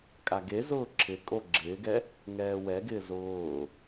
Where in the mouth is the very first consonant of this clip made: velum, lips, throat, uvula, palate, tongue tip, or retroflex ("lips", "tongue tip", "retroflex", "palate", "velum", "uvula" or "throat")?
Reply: velum